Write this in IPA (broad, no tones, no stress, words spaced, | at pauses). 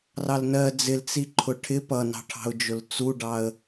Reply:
rɑlnɜ d͡zɪlt͡si ǃʰʊʈʰɪ pʌnɑ̤ʈʰɑ̤ʊ̯d͡ʒʊl t͡suɖɑə̯